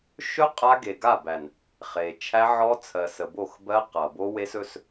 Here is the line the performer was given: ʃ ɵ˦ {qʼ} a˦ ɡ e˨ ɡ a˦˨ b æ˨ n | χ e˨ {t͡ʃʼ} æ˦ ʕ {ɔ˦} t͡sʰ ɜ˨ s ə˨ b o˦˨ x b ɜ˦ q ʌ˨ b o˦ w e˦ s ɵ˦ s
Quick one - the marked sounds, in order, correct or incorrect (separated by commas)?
correct, incorrect, correct